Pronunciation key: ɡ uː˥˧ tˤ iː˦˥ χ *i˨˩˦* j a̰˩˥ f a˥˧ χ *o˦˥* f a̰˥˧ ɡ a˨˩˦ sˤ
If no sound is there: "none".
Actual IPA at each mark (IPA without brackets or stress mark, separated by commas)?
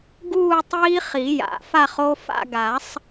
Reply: i˨˩˦, o˦˥